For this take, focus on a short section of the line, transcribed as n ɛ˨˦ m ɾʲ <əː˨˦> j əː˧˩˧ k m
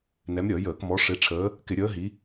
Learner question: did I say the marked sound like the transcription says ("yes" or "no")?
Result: no